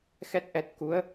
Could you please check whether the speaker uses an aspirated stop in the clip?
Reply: no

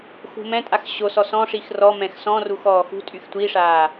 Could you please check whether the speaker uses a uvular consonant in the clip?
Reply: no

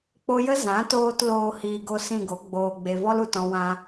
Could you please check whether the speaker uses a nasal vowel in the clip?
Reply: yes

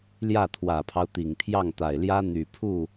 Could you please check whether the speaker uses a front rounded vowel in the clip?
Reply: yes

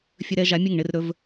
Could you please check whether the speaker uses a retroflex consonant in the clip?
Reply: yes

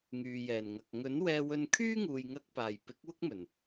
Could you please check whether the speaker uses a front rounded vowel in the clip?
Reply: yes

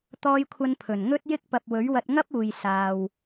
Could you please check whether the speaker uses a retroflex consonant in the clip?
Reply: no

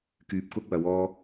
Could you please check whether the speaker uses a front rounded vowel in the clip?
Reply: yes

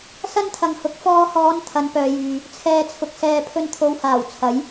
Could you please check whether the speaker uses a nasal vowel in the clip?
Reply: no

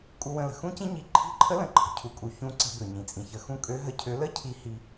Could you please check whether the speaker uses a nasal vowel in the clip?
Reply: yes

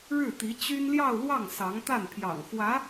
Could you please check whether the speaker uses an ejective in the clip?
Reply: no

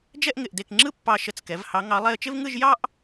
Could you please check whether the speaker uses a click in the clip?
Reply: yes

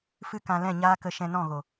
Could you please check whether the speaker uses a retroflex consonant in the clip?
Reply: no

